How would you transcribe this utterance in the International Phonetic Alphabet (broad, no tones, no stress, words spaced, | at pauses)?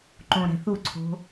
ǃõɾɛ̤θuǀʰo̤